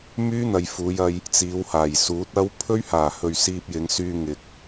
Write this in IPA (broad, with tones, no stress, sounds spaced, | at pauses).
m yː˥ n̪ ɐ˨ j f uː˨˧ j ɐ˧ j | t͡s iː˨˧ w h aː˨˩ j s uː˨˥ t̚ ɐ˥ w pʰ ɵ˥ ɥ h aː˨˩ h ɵ˨ ɥ s iː˧ p̚ j ɪ˨˧ ŋ s yː˧ ŋ ɪ˨ k̚